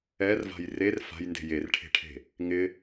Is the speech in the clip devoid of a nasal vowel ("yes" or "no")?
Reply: yes